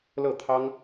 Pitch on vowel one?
falling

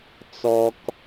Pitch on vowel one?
high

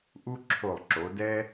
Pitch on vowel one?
high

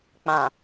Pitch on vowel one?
low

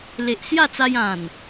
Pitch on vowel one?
low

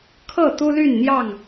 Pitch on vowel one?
falling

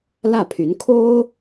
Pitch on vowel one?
falling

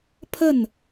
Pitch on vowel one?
falling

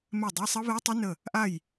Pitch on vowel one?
falling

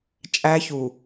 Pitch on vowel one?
high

